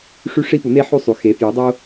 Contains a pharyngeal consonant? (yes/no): yes